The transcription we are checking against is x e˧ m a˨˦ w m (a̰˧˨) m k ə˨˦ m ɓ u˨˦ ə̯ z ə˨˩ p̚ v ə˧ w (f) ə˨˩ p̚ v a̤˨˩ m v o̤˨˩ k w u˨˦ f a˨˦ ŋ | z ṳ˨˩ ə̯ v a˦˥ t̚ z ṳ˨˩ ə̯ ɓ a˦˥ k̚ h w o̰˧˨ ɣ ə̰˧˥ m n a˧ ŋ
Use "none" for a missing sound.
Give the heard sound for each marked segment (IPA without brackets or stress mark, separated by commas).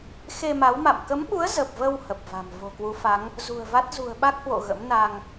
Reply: a̰˧˨, h